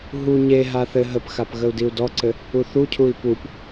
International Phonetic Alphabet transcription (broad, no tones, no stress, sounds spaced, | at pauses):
ɦ u ɲ e ɦ a θ ɘ ɦ ə p x a p ɣ ə u̯ d i u̯ d ɔ ǀ ɘ | u θ u cʰ u i̯ p u p